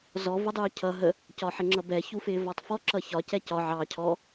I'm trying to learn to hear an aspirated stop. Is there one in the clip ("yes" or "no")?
yes